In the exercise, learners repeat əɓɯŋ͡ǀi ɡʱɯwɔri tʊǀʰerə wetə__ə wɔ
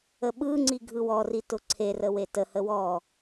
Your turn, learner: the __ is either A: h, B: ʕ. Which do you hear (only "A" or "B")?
A